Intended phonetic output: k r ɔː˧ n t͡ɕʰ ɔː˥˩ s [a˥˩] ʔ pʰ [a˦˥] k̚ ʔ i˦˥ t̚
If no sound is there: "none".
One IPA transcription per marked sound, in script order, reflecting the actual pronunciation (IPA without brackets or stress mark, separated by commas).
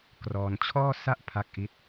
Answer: a˥˩, a˦˥